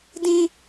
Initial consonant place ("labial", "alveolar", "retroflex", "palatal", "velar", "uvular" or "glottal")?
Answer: alveolar